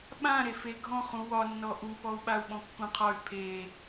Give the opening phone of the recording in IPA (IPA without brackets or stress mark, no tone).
ɓ